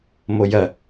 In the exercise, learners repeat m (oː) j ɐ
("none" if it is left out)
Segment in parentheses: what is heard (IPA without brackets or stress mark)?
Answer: o